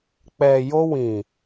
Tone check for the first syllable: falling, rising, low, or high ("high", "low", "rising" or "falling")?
low